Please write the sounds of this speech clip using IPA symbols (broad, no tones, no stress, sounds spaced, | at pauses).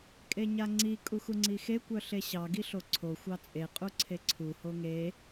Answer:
kʼ e ɲ a ŋ͡ǀ i kʼ u x u ŋ͡ǀ i x e kʷ œ ɬ e ɕ ɑ ɡ i ɬ o ǀʰ o xʷ ɑ t͡sʼ e qʼ u ǀʰ e ǀʰ u h o ŋ e